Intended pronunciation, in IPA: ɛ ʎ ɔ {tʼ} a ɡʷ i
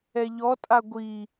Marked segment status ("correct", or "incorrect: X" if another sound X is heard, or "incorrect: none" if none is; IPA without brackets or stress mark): correct